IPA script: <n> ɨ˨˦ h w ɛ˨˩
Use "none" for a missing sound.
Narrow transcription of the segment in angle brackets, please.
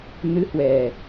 n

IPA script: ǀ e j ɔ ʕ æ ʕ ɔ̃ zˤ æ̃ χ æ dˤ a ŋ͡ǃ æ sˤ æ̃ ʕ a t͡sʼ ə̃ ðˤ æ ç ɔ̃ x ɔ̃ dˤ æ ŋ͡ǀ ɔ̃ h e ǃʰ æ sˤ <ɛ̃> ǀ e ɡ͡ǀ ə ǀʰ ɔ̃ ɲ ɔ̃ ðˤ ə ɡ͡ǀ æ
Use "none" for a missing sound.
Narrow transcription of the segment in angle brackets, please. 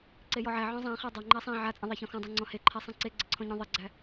æ̃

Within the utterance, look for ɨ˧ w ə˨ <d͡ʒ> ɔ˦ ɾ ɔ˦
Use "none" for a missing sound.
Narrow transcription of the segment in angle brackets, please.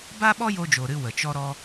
t͡ʃ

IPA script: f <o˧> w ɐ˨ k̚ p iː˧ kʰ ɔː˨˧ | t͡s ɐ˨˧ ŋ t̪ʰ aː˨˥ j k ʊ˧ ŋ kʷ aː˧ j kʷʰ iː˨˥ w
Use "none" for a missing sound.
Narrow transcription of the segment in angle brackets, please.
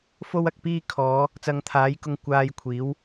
o˧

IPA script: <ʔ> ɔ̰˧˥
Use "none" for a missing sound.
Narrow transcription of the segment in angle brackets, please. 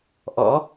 ʔ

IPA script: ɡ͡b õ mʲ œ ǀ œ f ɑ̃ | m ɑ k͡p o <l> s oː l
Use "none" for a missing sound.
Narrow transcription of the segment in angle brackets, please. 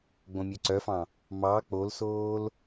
l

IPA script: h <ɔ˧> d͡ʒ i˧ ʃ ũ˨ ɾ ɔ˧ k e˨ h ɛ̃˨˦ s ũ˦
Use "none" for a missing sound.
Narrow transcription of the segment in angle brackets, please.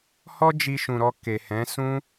ɔ˦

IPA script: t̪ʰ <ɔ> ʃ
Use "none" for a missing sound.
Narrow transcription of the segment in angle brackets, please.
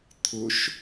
ʊ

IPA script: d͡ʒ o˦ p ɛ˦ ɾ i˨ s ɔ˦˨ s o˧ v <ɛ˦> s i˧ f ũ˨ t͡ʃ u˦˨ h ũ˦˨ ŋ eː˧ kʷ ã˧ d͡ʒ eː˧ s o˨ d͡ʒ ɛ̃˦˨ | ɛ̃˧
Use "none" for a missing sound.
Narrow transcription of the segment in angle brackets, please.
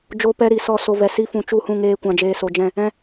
ɛ˨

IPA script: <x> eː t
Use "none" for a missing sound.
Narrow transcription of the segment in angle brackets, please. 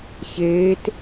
ç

